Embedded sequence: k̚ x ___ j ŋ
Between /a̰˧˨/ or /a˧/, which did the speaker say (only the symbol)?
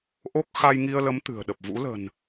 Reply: a˧